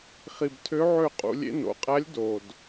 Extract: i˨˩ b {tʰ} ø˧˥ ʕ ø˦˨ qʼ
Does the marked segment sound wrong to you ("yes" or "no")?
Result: no